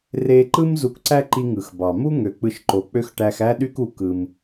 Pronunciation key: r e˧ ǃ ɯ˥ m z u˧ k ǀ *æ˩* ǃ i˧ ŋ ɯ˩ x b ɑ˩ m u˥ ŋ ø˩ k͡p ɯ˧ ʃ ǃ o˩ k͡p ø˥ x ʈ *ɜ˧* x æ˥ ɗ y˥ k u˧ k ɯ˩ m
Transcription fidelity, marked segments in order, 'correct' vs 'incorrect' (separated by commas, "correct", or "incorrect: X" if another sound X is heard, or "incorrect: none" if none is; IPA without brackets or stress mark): incorrect: æ˥, incorrect: æ˧